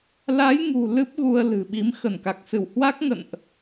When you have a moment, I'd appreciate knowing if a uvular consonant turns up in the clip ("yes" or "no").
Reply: no